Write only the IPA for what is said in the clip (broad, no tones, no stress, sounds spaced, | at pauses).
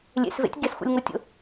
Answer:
lʲ ḛ s v ḛ tʲ ɡ e s xʷ ḭ lʲ ŋ o tʲ o̰